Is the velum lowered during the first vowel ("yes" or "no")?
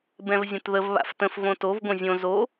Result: yes